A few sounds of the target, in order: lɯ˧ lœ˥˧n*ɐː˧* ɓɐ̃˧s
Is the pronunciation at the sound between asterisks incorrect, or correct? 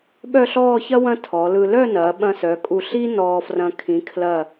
incorrect